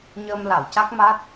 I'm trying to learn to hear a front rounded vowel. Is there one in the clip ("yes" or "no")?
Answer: no